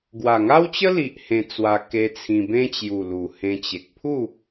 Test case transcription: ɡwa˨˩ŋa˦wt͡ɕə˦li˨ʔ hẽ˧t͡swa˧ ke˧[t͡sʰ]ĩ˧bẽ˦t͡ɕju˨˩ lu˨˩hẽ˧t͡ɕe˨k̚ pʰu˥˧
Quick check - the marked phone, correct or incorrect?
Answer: correct